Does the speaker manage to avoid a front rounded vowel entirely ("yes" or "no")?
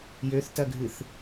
no